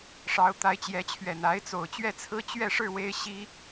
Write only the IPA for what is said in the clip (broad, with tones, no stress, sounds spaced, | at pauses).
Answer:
ʂ ɑ˧˥ ʊ̯ t̪ a˧˥ ɪ̯ t͡ɕ j ɛ˧˥ t͡ɕʰ ɥ ɛ˨˩ n a˧˥ ɪ̯ t͡s o˨˩ ʊ̯ t͡ɕ ɥ ɛ˥˩ t͡sʰ ɹ̩˥ t͡ɕ ɥ ɛ˥˧ ʂ ɻ̩˥˩ w e˥ ɪ̯ ɕ i˥